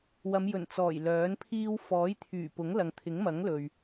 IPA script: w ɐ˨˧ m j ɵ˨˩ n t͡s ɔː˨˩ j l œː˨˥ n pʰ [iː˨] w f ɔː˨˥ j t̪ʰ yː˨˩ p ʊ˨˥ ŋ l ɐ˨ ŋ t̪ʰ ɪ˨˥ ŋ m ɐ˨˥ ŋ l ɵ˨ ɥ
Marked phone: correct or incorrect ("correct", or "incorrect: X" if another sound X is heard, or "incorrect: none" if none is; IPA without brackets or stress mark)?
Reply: incorrect: iː˥